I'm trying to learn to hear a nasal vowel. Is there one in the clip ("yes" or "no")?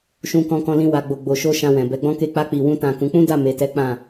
yes